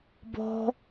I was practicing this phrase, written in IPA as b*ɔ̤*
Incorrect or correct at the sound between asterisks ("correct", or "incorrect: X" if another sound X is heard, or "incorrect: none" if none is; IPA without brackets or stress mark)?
correct